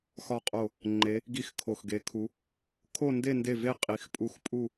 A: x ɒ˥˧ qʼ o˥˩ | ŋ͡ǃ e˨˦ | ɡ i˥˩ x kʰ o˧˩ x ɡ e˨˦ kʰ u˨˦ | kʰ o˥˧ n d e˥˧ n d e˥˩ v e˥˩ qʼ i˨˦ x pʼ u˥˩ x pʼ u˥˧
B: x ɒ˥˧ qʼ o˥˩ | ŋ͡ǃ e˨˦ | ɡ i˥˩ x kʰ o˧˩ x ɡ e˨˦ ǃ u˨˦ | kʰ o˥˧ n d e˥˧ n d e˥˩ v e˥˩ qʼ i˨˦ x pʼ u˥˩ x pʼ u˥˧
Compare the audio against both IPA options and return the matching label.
A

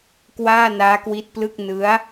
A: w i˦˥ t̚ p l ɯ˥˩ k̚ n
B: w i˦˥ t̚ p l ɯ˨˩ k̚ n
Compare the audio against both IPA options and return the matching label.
A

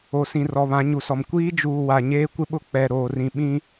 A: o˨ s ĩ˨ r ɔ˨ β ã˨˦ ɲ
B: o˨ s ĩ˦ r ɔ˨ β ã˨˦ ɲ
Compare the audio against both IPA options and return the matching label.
A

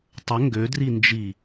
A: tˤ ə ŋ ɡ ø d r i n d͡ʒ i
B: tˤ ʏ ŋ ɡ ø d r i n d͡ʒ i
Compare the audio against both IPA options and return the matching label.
A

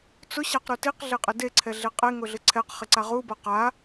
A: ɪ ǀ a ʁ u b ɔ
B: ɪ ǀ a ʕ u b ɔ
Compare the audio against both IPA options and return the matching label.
A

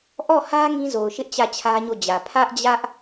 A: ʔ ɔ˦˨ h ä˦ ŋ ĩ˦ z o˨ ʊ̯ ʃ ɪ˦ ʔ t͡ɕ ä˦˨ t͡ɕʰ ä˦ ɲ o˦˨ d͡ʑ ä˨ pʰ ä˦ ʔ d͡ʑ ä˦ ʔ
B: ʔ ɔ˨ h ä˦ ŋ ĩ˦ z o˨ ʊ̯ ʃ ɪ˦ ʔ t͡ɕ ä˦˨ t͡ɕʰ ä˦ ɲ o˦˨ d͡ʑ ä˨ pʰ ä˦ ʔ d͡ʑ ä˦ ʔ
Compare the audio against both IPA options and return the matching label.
A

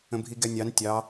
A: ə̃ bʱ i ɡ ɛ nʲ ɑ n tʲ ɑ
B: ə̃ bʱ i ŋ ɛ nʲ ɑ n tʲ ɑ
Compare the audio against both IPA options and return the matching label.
A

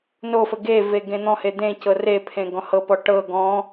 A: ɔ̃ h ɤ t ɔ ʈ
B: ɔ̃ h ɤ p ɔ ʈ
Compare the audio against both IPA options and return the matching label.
B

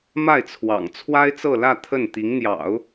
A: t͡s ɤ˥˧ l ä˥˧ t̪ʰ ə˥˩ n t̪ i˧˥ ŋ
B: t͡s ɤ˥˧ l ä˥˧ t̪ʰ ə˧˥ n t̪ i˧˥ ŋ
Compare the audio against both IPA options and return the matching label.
A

